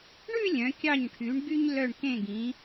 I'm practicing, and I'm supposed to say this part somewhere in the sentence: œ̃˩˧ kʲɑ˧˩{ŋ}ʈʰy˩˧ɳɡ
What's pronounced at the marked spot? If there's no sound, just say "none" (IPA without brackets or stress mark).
ɲ